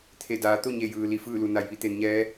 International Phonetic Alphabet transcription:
t̪ʰe˧˩daː˩˧ t̪o˥˨ɲe˧˩jɯː˩li˧˩ fɯː˥˨lu˩ na˩jʋi˥˨t̪e˩˧nɲɛː˧˥

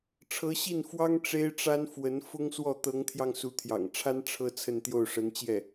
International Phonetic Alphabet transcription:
ʈ͡ʂʰɤ˧˥ɕi˥˩nfwɑ˥ŋ ʈ͡ʂe˥ɪ̯ʈ͡ʂa˥nfwə˧˥n fʊ˥ŋswɔ˥˩ t̪ɤ˧˥ŋt̪ʰjɑ˧ŋ su˧˥t̪ʰjɑ̰˨˩ŋʈ͡ʂʰa˥n ʈ͡ʂʰɤ˥ t͡sʰə˥˧nt̪jo˥˩ʊ̯ ʂə˧˥nt͡ɕjɛ˥˩

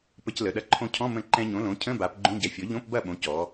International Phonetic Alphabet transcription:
pə˧clə˩˧ɗɐ˧ ǃʰõ˧cʰɔ̃˧˥˧ mə̃˥˩ ǃɛ̃˧ɲõ˩˥ lõ˩˥ cʰə̃˧˥˧ba˩˧p ɡ͡ǃõ˧˥˧ɟɛ˩˥fʲɔ˩˥ ʎõ˧˥˧pbɐ˥˩ɓõ˩˥ cɔ˩˧

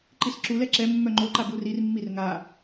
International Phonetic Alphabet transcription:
ǃisǁulɛ ǁɛ mːœŋ͡ǃoǃa burirmːir ŋa

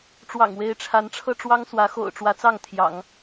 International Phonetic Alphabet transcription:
ʈ͡ʂwɑ̰˨˩ŋwe˧˥ɪ̯ʈ͡ʂʰa˧˥n ʈ͡ʂʰɤ˥˩ʈ͡ʂwɑ˥ŋswä˧˥ xo̰˨˩ʊ̯ʈ͡ʂwä˧˥t͡sɑ˥˩ŋt̪ʰjɑ̰˨˩˦ŋ

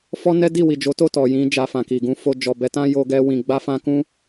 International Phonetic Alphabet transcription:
fɔ˦nɛ˦ di˦˨wi˨d͡ʒo˨˦to˦˨ tɔ˨jĩ˨˦ d͡ʒa˧fã˨ki˨ ɡũ˨˦ fo˧ d͡ʒɔ˨bɛ˨˦tã˦ jo˦ɡɛ˦wĩ˧ ɡ͡ba˦fã˦ kũ˦

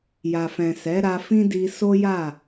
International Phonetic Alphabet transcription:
ja˨fɛ̃˨sɛ˨˦ ɾa˧fĩ˦di˧ so˦ja˦˨

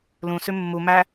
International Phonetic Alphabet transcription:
lũ sʉmːu mæ

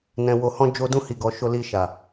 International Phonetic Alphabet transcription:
nɛ̃˨wo˨hɔ̃˧ d͡ʒo˧ dũ˧hi˨ɡɔ˨ ʃo˨li˨ ʃa˨

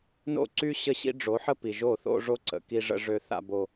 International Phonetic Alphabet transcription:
no̰˦˨ǀy˦ ɕə˦ɕḭ˦ ɖ͡ʐo˨˦ħə˦pi˨ ʒo˦˨θo̰˦ʐo˦ǀə̰˨ ki˦ʐə̰˦ ʐø˦θa̰˦bo˦

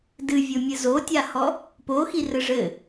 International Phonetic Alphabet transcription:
dɨvʲomʲɨ zotʲahɔ | poxirɘ ʐɘ

